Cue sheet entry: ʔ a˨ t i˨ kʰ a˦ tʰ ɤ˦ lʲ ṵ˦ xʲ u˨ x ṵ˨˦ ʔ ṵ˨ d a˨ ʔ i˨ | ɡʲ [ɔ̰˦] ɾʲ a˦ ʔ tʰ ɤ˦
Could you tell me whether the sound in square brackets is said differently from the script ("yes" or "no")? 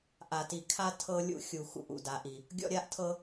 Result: no